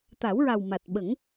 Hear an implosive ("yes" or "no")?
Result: yes